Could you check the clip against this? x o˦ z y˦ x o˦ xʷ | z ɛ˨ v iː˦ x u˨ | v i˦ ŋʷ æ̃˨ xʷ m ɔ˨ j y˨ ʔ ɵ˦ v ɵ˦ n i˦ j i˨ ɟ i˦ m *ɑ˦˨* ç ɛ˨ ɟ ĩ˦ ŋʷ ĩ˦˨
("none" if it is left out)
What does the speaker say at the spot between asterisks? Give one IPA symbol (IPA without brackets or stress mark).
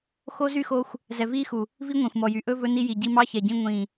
ɑ˦